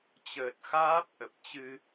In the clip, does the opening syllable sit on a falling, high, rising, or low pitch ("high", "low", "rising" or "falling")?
low